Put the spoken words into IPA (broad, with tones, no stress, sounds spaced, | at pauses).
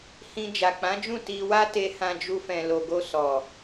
h ĩ˧ d͡ʒ a˨ k͡p ã˨˦ d͡ʒ ũ˦˨ t i˧ w a˦ t e˧ h ã˧ d͡ʒ u˧ f ɛ̃˨ l o˨ ɡ o˧ s ɔ˨